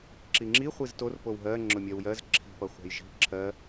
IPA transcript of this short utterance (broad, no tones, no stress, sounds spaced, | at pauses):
ǁ i ŋ͡ǁ i χʷ i z t o r p o w ɦ ɜ ŋ͡ǁ ʊ mʲ ɜ w j ɜ z ǁʰ i̤ p ʌ χʷ a̤ j ʒ i̤ ǁʰ ɜ